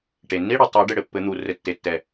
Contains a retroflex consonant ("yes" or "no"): yes